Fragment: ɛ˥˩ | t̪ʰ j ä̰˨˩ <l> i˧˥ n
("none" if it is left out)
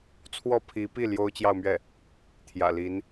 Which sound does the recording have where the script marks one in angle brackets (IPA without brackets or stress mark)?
l